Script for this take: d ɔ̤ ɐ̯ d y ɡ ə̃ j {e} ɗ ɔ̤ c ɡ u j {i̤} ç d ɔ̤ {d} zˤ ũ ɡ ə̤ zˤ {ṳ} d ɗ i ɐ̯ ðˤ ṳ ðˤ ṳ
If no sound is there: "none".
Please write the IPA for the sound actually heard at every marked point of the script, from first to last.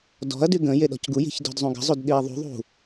e, i̤, d, u

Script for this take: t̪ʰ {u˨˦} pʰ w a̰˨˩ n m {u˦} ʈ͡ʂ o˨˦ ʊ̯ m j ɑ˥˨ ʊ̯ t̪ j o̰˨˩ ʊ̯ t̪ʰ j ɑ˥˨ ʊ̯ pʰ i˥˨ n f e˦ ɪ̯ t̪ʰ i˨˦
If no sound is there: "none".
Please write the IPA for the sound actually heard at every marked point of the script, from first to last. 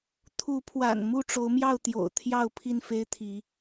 u˨˦, u˥˨

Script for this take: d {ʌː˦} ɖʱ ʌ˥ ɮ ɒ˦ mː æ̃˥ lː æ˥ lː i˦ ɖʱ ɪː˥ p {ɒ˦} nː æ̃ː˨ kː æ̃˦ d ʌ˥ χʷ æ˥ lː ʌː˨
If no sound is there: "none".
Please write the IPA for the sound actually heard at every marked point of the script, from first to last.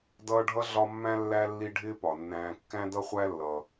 ʌː˦, ɒ˩

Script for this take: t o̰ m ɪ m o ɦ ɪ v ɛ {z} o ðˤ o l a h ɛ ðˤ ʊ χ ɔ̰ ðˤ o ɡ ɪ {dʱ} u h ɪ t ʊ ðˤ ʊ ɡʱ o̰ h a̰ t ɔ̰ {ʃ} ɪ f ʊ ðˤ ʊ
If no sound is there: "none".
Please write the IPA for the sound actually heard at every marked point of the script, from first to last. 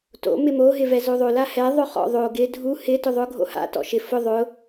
z, dʱ, ʃ

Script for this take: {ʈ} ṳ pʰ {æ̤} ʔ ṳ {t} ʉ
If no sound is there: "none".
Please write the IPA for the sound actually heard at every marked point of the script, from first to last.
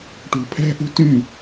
ʈ, æ̤, t

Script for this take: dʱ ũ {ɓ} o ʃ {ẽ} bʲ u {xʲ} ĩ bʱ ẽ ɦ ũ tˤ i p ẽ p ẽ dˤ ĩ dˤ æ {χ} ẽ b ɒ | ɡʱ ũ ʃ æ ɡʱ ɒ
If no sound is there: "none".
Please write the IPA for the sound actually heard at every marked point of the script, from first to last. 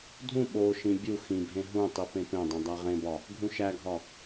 ɓ, ĩ, x, ʁ

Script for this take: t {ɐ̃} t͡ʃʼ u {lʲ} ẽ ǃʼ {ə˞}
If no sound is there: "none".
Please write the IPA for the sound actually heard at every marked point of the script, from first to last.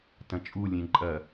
ɐ̃, lʲ, ɐ

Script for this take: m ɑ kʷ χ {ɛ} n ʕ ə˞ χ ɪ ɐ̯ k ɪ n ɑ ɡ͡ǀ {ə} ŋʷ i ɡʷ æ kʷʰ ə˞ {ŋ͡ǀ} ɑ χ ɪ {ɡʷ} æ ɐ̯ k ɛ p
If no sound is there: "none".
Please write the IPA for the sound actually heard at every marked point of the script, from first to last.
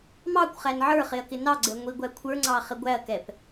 æ, ə, ŋ͡ǀ, ɡʷ

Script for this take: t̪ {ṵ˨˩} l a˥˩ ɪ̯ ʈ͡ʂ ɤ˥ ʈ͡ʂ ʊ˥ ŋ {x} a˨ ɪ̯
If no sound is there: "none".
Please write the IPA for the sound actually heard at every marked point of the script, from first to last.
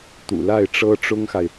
ṵ˨˩, x

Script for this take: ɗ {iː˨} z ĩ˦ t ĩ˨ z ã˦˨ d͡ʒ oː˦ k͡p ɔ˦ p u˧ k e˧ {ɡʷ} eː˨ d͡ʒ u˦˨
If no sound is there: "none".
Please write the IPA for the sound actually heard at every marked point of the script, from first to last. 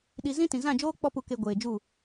i˨, ɡʷ

